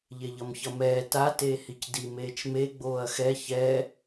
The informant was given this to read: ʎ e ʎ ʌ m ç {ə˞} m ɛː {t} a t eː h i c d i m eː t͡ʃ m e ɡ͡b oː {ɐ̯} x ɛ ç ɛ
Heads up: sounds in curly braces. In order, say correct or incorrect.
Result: incorrect: ʌ, correct, correct

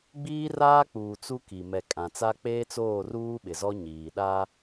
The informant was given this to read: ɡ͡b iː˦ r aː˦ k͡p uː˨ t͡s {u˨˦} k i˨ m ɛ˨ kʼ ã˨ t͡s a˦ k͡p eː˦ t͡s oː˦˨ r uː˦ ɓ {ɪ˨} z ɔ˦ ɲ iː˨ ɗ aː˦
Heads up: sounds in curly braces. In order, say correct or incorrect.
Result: incorrect: u˦, correct

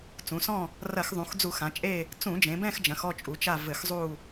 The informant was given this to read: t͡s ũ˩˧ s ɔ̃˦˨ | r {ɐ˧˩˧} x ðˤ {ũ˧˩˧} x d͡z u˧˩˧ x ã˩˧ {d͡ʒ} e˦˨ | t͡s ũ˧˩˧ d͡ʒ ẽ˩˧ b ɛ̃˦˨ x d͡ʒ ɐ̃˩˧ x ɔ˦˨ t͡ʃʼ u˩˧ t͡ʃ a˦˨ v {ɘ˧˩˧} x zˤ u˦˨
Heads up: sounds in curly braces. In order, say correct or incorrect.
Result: correct, incorrect: ũ˩˧, incorrect: t͡ʃʼ, correct

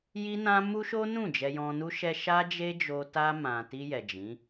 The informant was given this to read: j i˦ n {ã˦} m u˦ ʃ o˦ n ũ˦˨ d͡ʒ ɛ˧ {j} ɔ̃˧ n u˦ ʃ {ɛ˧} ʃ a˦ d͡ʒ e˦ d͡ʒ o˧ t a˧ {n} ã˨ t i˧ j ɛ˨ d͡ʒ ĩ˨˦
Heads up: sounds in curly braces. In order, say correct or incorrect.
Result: correct, correct, incorrect: ɛ˦, incorrect: m

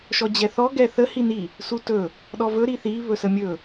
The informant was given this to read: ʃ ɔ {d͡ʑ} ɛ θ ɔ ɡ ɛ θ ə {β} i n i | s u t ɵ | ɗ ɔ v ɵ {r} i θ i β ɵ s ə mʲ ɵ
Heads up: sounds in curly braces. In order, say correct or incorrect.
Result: correct, incorrect: h, incorrect: ɾ

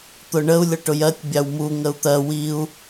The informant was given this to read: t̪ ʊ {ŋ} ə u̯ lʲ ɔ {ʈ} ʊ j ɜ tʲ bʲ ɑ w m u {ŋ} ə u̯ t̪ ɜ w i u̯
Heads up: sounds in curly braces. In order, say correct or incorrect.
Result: incorrect: ɳ, correct, correct

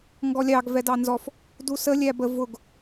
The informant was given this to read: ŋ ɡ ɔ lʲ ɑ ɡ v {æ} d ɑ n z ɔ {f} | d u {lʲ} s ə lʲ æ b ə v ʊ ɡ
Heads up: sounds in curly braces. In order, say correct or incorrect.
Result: incorrect: ɛ, correct, incorrect: none

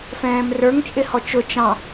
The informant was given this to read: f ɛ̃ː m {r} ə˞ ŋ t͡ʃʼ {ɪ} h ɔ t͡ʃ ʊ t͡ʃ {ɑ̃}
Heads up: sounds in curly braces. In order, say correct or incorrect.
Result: correct, correct, correct

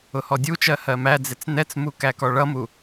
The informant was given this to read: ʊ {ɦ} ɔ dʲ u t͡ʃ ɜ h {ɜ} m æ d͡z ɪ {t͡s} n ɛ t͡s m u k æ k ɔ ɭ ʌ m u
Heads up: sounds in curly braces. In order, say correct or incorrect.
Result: incorrect: h, correct, correct

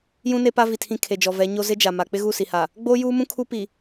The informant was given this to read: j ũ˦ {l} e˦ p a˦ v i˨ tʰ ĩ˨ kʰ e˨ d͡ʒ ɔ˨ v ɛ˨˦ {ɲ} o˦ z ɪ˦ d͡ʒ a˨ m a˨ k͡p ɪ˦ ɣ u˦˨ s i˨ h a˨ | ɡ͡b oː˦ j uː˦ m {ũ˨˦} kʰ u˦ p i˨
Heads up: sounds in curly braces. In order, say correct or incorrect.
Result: incorrect: n, correct, incorrect: ũ˦

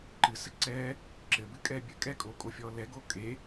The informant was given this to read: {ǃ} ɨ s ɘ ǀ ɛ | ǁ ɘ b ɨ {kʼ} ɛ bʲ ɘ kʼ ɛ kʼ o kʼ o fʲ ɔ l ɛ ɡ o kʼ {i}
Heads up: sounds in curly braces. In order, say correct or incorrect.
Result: correct, correct, incorrect: e

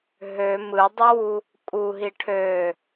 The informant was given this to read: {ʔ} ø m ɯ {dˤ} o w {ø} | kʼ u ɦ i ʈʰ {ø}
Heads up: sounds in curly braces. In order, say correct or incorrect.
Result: incorrect: ɦ, correct, incorrect: u, correct

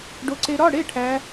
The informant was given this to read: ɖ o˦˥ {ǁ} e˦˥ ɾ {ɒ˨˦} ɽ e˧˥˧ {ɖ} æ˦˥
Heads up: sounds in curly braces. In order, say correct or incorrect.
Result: incorrect: ǀ, incorrect: ɒ˧˥˧, incorrect: ʈʰ

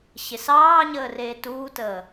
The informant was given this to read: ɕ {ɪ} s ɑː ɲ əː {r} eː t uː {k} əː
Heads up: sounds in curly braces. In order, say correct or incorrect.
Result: correct, correct, incorrect: t

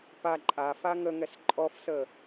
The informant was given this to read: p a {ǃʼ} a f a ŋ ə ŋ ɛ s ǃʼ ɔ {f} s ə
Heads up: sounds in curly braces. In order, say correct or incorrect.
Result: correct, correct

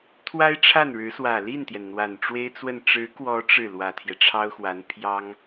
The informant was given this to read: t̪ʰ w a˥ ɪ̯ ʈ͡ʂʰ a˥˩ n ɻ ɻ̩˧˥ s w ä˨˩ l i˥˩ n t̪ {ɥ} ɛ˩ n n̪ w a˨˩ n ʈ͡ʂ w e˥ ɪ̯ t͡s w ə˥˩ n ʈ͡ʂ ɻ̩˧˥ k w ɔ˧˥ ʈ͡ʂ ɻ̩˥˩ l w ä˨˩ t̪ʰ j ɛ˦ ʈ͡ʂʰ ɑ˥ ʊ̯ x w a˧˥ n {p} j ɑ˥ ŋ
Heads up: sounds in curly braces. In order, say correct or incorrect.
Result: incorrect: j, incorrect: pʰ

